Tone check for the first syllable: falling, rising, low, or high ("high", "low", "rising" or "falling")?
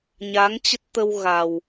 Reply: rising